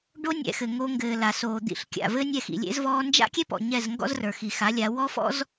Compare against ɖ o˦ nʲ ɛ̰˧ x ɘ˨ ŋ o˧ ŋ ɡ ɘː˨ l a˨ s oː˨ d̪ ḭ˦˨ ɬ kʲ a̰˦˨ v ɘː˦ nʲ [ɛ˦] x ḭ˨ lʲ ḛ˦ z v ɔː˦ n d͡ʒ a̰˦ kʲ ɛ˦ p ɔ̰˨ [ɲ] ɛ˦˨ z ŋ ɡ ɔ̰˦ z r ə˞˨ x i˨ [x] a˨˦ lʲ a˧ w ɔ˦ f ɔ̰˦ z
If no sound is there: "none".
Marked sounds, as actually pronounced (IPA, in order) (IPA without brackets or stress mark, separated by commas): ɛ˧, ɲ, x